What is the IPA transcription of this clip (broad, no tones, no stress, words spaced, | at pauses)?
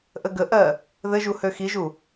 ʔəɡəʔɜ | ðɘʒu høxiʒu